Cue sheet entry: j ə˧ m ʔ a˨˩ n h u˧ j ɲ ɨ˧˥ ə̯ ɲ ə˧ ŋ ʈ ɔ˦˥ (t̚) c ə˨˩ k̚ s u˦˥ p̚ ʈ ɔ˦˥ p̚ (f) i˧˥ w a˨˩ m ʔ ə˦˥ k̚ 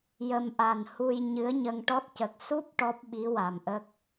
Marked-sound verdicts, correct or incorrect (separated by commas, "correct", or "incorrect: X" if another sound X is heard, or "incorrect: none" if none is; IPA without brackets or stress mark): correct, incorrect: ɓ